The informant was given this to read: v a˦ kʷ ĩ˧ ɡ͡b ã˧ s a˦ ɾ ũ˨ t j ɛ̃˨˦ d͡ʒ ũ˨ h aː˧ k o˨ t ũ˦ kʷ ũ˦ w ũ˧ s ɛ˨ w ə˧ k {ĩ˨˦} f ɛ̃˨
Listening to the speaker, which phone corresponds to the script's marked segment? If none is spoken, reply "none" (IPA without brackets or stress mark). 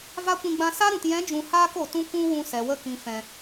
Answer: ĩ˨